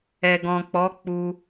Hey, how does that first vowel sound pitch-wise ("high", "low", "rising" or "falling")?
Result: low